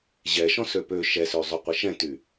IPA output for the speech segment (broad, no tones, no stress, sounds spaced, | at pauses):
ʑ ɛ ʃ ɔ̃ s ø p ø ʃ ɛ s ø zˤ y qʷ ɘ ʃ ɛ̃ t y